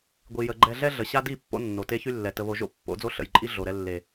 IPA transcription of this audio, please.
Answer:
ɡʷ i˨ j ə˨ ɡ͡ǃ ɛ˨ ɮ ɛ˦ ɮ ə˨ ɕ a˦ d i˦˨ pː o̰˦ nː o˨ t e˦ ç y˦ lː ɛ˨ t ə˨ β o˨ ʒ o̰˦ pː o̰˨˦ d͡z o˦ ɬ ə̰˨ j ǃʼ i˦ ɮ o˨ ɾ ɛ˦ lː e˨

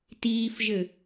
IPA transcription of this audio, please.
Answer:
t iː f ʒ ɘ

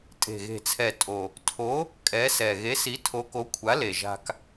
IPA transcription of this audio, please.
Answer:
tʼ e̤˨˩ ɣ e̤˨˩ t͡sʰ ɛ˨˩ tʼ o˨˩ | tʰ o˨˥ | kʼ ɛ˨˥ s ɛ˨˩ ɣ e˨˥ s i˨˥ tʰ o˨˥ k o˨˥ kʷʰ a˨˥ l e˨˩ ʒ a̤˧ k

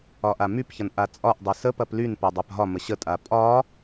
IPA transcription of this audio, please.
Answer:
ɒ ʔ a m y p ç ɐ n ʔ a t͡sʼ ɒ ʔ dˤ e s ə p ɐ p l y n p ɐ dˤ a p ɦ ɒ m ə ɕ ə tʼ a pʼ ɒ

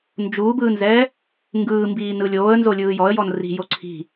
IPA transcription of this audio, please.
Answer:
n d͡ʒ uː b ɯː n z ɛː | ŋ ɡ ɯː m b iː n ɯ lʲ oː ə̯ n z o lʲ ɯː j ɔ ə̯ j ɔ n r i̤ j o ǀʰ i̤

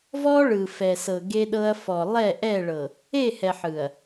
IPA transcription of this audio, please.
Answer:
v ɔ˦ ɭ ɯ˨ f ɛ˨ s ɤ˨ ɡ e˦ ɗ ɤ˦ ɐ̯ f ɔ˨ lˠ ɛ˦˨ ʔ ɛ˦˨ ɭ ɤ˨ | e˦˨ h ɛ˨ ħ ɯ˨ ɐ̯

